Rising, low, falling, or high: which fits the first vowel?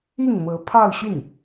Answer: falling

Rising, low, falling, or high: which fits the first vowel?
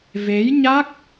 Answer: rising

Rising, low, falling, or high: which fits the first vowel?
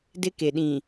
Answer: high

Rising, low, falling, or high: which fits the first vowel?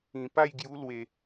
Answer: low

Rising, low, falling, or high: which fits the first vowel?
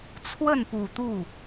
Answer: falling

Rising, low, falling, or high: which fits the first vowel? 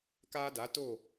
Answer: high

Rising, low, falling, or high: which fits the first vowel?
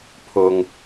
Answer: low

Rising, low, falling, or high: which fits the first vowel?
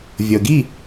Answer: low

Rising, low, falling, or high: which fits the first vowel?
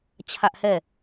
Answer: high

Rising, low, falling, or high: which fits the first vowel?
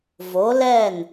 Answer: rising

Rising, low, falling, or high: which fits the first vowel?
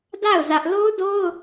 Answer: falling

